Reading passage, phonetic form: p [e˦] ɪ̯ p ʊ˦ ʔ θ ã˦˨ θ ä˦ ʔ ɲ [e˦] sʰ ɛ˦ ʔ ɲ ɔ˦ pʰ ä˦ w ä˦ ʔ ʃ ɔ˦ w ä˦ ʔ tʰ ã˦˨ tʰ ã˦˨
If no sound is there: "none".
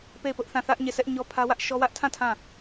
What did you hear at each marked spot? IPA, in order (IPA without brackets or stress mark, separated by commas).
e˦˨, e˦˨